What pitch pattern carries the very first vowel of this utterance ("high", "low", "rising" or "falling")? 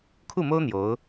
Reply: falling